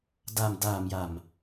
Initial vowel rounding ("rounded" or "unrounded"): unrounded